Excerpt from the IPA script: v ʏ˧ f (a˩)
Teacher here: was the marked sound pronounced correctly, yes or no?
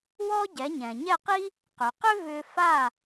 no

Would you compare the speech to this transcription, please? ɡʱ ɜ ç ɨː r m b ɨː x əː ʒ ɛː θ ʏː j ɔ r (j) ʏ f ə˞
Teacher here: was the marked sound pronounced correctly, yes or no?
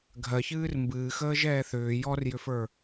yes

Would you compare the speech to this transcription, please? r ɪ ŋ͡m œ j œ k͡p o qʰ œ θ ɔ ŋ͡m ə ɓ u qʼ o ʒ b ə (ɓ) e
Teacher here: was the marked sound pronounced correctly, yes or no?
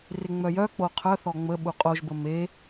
no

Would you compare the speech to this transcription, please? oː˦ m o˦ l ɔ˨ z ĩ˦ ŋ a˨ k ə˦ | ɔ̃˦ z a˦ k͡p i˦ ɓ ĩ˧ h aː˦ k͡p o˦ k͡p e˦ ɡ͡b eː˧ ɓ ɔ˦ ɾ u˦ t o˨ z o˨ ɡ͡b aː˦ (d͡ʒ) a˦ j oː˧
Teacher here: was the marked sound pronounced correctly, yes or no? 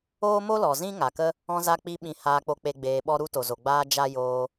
yes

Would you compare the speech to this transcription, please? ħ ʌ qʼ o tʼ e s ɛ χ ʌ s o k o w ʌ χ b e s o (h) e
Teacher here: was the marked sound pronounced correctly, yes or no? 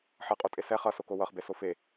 no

